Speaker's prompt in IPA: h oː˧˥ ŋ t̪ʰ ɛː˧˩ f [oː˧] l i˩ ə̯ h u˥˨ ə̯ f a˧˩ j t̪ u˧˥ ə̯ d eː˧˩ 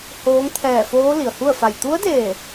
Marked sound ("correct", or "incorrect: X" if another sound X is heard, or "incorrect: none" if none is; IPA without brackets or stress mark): incorrect: oː˧˥